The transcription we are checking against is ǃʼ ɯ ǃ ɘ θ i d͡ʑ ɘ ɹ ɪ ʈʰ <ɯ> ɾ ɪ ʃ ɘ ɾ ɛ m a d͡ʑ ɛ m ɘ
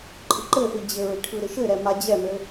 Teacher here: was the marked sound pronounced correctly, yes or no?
yes